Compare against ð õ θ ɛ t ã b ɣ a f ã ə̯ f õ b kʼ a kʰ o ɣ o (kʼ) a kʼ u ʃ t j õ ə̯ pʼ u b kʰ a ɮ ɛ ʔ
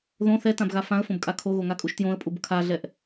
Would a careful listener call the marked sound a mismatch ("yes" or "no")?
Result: yes